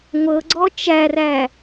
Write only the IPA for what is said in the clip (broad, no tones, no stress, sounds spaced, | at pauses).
ŋʷ ɤ ɡ͡ǀ ɔ t͡ʃ æ r æ